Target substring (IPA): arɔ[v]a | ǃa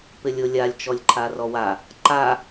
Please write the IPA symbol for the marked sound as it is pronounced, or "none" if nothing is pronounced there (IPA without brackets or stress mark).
w